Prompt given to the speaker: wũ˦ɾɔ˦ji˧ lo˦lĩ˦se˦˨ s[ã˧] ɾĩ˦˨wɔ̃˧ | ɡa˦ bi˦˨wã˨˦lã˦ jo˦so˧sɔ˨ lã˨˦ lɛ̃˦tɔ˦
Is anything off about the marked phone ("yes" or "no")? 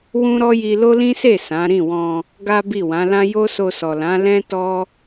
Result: yes